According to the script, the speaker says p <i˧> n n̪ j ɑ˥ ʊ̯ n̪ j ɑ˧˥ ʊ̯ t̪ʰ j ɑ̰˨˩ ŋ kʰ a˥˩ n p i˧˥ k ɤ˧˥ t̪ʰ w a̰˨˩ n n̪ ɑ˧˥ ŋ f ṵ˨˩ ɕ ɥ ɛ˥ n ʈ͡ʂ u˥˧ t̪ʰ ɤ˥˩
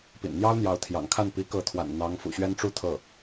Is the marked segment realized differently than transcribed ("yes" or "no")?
yes